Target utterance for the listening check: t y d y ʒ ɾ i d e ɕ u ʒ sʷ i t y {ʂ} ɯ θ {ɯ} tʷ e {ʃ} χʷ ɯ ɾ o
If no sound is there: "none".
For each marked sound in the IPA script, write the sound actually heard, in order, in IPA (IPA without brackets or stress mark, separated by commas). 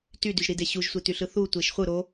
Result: ɬ, u, ʃ